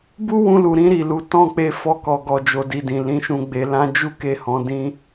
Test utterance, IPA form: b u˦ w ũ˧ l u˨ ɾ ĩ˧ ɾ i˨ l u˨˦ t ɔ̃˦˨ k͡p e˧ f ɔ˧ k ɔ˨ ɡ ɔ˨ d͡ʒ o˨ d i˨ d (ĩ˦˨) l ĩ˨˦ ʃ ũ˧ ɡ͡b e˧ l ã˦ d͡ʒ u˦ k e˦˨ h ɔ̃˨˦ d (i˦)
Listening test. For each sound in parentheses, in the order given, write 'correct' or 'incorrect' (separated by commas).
incorrect, incorrect